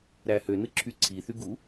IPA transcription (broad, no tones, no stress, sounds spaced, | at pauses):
ɾ æ h ø n ɯ ǁʰ y ǀʰ i θ y ɡ u